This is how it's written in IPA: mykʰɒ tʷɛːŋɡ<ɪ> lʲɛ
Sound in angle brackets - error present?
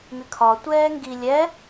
yes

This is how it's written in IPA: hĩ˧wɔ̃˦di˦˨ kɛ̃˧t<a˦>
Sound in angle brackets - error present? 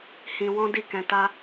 no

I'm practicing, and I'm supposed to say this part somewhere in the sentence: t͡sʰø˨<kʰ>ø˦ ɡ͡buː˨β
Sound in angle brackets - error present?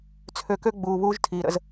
yes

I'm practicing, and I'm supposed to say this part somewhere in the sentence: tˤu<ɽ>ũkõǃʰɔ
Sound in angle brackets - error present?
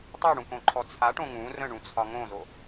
no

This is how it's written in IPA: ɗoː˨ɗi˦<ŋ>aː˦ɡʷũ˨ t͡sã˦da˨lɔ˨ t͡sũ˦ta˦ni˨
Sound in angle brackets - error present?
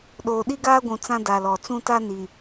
yes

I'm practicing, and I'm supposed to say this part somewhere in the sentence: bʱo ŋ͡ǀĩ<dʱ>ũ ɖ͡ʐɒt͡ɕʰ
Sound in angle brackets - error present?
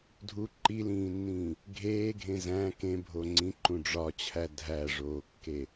yes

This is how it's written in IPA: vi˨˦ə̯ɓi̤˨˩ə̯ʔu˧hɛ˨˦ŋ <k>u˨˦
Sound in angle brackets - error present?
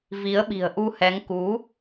no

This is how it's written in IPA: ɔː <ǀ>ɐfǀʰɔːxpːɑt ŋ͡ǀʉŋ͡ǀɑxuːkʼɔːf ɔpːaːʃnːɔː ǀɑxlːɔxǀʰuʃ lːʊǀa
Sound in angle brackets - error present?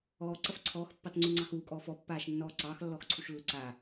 no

